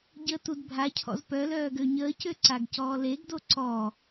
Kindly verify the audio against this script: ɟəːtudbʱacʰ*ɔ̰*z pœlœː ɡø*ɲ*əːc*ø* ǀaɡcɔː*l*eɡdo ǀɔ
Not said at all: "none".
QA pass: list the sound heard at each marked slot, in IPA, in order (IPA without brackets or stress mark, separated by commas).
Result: ɔ̰, ɲ, ø, l